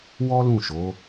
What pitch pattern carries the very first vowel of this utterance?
high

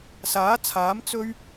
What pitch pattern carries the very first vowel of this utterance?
rising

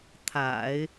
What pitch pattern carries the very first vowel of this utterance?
low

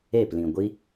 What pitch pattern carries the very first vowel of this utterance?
falling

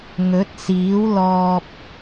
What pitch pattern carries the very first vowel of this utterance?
rising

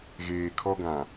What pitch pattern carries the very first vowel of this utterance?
low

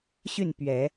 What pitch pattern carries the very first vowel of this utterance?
falling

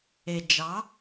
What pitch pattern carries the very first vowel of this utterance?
low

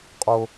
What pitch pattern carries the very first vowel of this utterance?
low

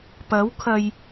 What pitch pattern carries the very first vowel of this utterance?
rising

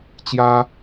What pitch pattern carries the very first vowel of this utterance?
high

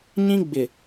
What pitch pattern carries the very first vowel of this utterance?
high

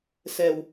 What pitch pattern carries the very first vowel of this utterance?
low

